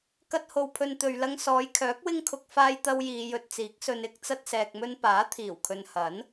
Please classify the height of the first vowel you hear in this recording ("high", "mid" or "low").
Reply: low